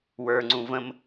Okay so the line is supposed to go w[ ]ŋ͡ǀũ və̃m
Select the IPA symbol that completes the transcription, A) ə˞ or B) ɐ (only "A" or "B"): A